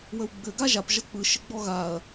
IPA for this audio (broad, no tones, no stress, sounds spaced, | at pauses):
w ə w ɡ͡b ɘ ɡ a ʒ a p ʒ ʌ k͡p ɯ ʃ ɘ ɡ͡b ɔ ɣ a ɐ̯